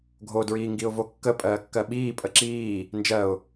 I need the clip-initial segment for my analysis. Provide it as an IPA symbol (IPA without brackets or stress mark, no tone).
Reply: ɡʱ